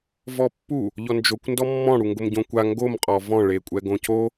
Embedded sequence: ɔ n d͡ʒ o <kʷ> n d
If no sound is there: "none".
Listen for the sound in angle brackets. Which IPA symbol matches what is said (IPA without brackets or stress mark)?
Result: kʷ